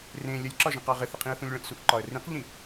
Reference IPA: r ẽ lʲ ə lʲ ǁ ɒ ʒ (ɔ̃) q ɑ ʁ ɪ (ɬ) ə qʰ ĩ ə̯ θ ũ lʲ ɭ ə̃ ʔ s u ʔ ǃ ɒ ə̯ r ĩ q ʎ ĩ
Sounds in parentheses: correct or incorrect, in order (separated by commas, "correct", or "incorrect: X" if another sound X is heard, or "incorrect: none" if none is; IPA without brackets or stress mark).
incorrect: ə̃, incorrect: θ